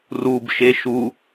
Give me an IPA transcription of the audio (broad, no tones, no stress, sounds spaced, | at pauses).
r u b ʃ e ʃ u